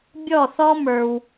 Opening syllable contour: falling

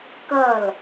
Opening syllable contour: falling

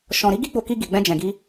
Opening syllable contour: low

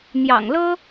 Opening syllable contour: low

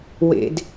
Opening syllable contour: high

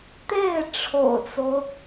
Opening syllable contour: falling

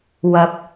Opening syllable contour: rising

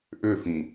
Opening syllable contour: falling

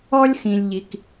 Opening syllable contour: high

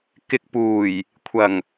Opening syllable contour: low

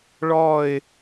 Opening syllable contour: falling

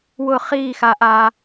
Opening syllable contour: falling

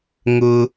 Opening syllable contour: high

